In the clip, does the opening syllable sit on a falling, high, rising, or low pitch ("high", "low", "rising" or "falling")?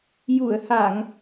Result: low